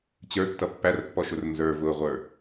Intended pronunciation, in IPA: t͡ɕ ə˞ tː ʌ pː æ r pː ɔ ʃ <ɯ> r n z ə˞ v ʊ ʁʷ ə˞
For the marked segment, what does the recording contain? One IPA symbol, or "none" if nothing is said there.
ʊ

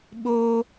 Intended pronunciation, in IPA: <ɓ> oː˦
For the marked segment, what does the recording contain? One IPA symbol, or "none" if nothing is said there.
ɓ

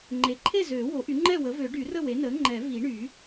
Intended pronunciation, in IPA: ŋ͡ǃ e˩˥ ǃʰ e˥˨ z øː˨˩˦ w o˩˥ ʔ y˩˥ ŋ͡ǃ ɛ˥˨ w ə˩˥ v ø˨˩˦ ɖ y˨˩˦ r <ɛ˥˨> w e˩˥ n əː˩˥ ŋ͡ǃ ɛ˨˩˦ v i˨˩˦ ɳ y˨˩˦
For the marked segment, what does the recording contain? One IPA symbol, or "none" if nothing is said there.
ə˥˨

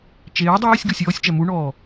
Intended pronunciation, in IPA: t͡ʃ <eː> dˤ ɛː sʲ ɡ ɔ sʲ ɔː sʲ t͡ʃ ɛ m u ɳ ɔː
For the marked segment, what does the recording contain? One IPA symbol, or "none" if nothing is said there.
eː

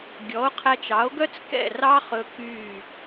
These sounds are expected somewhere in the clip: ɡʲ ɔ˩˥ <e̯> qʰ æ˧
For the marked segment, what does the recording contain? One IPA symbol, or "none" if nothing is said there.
o̯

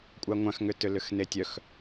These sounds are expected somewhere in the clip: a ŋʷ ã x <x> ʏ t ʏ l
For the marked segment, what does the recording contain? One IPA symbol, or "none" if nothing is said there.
ŋ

